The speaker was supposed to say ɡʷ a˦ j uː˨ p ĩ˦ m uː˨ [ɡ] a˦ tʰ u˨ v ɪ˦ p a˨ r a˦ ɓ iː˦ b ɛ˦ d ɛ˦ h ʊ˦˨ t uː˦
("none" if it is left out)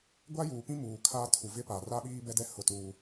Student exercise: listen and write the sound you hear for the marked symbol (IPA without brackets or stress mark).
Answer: kʰ